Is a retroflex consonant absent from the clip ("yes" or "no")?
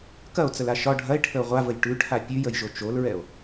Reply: no